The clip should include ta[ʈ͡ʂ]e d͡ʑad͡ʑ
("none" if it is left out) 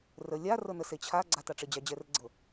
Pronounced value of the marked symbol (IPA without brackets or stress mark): ʈ͡ʂ